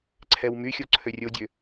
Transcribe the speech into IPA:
ǀʰ ɛ w m y xʲ o ǀʰ ø rʲ o dʲ ø

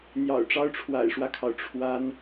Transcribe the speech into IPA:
n̪ j ɑ̰˨˩ ʊ̯ ʈ͡ʂ ɑ˦ ʊ̯ ʈ͡ʂʰ w a̰˨˩ ɪ̯ ʂ w ä˦ kʰ ɑ˩ ʊ̯ ʈ͡ʂʰ w a˦ n

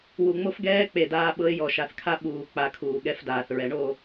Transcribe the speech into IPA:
w u˨ ŋ͡m o˦ f ɡ ɛː˦ k͡p e˨ d aː˦ ɓ ɤ˦ ɪ̯ j ɔ˨ ʃ a˨ θ kʰ a˦ ɓ uː˨ k͡p a˨ kʰ uː˨ ɠ ɛ˦ f d aː˨ θ ɹ ɛ˨ ɳ o˦˨

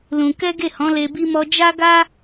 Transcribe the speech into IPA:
l ũ˧ k ɛ˦ ɡ e˦˨ h ɔ̃˨˦ l e˧ b i˦ m ɔ˦ d͡ʒ a˦ ɡ a˦

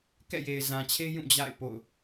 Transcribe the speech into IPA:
k ɛ̰˦˨ j e˨ ɪ̯ z ã˨ t͡ɕʰ e˦ j ũ˦˨ d͡ʑ a̰˦˨ ɪ̯ p o̰˦˨ ʊ̯

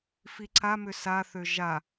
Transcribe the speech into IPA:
f i ǀ a m ʏ s a θ ø ʒ a

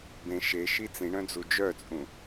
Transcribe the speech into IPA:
b ẽ ʃ e ʃ i t͡s ĩ ɳ œ̃ d͡z u d͡ʒ œ t͡sʼ ũ

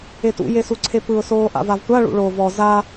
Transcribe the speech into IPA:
e t ṵ j e s u ǀʰ e p ɯ ʊ̯ s oː ʔ a̰ v a v tʷ a ɭ ṵ ɭ o v ɔ z a

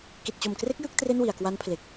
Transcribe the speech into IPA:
k i˨˩ t̚ t͡ɕ o˨˩ m k r e˦˥ k̚ j ɯ˥˩ k̚ t r e˥˩ n w i˨˩ a̯ k w a˦˥ n pʰ l e˨˩ k̚

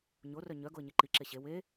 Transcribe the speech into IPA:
ɲ o r œ ɲ œ ɡ o ə̯ ɲ e ǃ i ǁ e ɕ e w e

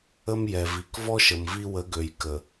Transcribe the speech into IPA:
ə˦ m j ɛ˨ v i˨ k v ɔ˦ ʃ ə˨ m v i˦ w ə˨˦ ɡ ø˨ j k ə˨

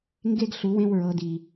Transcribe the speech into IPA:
ŋ ɡ e˦ ɡ ɬ u˨˩˦ w ẽ˦ w ɹ ɤ˨˥ d i˨˩

